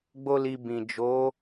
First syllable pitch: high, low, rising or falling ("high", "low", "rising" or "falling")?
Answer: high